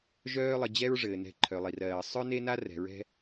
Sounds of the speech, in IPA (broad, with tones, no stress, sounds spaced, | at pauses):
ʒ œː˦ lˠ ə˨ d͡ʑ ɛ˦ ɹ ʐ ɘː˩ n ɛ̤˨ ǃʰ œ˩ lˠ i˩ r ɜː˩ sˤ œ˦ n e˦ n a˦ r ɛ̤˩ ɹ ɛ̤˦